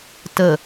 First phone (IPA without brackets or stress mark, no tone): t